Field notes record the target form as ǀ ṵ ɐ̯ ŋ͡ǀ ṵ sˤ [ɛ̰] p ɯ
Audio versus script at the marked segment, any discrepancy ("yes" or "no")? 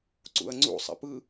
no